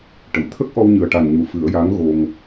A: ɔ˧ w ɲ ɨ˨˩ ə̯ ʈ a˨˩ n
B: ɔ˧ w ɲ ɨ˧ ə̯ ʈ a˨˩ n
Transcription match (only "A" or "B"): A